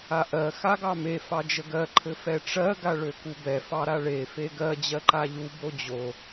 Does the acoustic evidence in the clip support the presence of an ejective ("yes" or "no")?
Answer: no